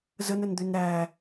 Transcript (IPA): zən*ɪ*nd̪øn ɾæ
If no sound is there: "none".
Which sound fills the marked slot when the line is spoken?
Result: ə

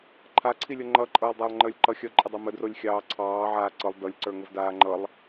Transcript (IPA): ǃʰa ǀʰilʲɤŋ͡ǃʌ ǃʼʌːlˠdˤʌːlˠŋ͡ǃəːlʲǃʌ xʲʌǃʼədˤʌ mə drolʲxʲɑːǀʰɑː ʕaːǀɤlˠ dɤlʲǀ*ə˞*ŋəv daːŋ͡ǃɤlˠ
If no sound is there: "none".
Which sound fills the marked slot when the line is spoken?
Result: ə˞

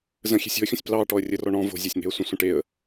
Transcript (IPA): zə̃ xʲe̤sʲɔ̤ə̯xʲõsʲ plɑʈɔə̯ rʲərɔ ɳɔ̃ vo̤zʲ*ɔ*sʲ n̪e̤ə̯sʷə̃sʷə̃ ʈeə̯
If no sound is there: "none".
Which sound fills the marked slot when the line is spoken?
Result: ɑ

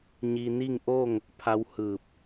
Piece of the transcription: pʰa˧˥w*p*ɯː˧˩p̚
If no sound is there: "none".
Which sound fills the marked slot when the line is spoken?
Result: h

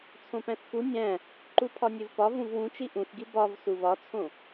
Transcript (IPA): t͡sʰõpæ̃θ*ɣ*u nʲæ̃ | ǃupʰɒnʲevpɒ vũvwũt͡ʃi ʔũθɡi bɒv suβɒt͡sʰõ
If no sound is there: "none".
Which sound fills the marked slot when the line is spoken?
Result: x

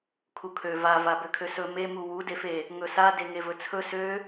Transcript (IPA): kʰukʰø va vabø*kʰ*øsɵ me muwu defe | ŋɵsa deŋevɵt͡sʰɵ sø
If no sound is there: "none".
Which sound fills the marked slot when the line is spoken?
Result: kʰ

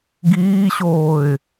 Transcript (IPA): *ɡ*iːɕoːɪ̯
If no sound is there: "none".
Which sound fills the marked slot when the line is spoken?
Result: ɡ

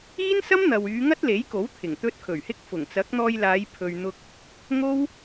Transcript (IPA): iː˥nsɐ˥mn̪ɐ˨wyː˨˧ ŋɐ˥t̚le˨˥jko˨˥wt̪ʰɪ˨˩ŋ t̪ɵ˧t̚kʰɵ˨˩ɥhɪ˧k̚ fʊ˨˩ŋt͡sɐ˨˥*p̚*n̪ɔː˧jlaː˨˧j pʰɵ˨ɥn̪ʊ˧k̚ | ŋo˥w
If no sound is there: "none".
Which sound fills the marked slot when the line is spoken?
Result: k̚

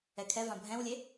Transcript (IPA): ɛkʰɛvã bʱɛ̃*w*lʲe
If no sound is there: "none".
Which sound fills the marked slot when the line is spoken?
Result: w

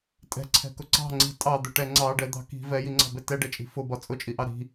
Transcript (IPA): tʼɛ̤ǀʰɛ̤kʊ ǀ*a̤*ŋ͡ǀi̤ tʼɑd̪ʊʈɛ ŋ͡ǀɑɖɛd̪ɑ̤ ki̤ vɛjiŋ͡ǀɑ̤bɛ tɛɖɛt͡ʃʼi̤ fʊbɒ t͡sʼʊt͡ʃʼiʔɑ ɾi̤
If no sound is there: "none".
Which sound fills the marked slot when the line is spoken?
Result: ɑ̤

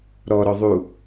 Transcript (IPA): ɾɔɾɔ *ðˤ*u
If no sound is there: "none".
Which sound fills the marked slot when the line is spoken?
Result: ðˤ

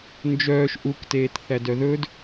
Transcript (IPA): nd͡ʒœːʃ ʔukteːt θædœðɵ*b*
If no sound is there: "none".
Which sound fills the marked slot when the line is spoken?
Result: d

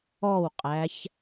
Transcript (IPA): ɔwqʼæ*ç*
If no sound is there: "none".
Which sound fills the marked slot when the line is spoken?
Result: ç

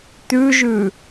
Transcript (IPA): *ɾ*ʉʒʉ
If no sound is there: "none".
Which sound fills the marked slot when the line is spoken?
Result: t̪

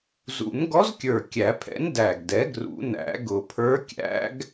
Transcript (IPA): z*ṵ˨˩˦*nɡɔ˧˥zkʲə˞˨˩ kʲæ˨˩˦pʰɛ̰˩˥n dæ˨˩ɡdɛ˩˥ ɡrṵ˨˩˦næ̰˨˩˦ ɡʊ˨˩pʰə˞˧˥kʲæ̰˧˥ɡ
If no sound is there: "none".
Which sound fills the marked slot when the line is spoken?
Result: ṵ˨˩˦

